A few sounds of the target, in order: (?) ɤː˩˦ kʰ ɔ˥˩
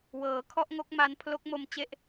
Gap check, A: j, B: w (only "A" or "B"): B